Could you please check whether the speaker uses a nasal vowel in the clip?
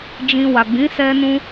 yes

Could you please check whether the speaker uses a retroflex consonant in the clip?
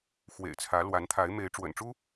yes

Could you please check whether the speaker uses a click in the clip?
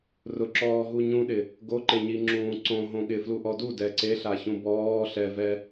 yes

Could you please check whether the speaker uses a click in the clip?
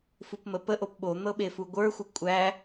no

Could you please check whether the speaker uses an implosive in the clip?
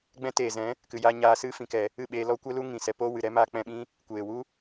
yes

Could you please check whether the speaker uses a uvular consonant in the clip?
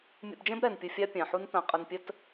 yes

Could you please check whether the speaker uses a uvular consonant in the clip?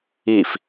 no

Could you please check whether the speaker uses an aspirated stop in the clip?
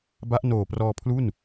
yes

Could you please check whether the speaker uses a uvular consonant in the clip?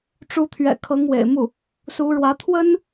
no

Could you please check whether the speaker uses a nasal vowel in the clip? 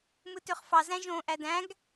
yes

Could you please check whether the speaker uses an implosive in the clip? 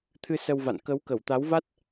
no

